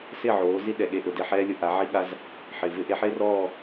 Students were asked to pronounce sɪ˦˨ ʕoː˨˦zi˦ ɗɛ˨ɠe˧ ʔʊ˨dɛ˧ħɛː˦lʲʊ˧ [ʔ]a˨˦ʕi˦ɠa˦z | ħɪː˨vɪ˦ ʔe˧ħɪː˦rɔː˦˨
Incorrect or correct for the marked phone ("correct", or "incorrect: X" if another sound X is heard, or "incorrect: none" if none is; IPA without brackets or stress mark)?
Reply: correct